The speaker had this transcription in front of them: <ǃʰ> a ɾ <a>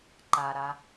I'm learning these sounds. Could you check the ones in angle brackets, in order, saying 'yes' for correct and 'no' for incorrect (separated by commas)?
no, yes